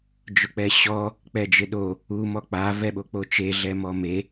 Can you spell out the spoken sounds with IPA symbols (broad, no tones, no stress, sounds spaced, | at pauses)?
d͡ʒ ʊ k͡p ɛ ɕ ɔ | k͡p ɛ d͡ʒ ɪ ɗ o | u m ɔ k͡p a v ɛ ɓ o k͡p o t͡ʃ e ɮ ɛ m ɔ m e